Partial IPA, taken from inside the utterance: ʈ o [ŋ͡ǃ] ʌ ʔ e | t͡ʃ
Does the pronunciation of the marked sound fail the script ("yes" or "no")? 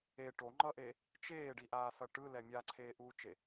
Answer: no